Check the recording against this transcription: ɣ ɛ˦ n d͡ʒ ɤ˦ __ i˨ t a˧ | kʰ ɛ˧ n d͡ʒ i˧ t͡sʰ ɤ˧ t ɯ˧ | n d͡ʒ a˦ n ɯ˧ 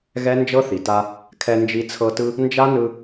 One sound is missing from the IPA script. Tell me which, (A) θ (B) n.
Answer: A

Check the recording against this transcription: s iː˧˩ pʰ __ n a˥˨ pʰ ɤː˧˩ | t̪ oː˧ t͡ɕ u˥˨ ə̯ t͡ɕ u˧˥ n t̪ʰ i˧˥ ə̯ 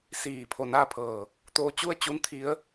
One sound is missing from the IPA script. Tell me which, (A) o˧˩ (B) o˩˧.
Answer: A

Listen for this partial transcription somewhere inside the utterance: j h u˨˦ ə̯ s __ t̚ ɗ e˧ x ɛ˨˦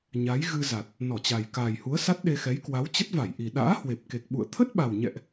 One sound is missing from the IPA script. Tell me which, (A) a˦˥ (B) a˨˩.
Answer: A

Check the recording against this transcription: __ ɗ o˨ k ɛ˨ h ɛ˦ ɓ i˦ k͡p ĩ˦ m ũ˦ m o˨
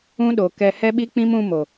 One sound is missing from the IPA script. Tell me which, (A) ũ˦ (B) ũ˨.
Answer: A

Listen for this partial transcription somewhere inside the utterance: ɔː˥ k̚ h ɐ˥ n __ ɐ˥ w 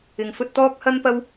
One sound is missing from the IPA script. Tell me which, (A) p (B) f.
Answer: A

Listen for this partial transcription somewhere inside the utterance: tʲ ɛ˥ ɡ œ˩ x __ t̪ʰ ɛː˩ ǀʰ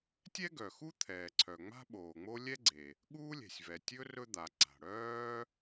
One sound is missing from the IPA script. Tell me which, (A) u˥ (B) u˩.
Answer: A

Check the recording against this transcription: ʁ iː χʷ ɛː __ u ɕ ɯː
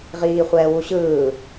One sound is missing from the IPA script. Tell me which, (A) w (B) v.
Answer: A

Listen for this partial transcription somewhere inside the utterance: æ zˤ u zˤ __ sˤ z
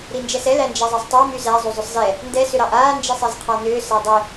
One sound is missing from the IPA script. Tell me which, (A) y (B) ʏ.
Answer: B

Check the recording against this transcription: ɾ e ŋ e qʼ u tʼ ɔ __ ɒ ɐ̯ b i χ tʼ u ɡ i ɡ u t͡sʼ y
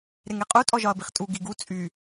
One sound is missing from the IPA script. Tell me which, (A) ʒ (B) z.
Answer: A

